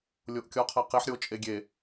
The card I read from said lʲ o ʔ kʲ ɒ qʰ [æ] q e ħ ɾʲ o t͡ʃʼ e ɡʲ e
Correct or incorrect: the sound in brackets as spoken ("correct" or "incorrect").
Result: correct